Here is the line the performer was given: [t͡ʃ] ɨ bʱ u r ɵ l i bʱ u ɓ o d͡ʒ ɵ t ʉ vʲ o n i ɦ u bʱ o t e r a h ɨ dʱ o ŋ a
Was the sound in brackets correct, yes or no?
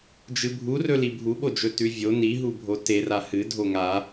no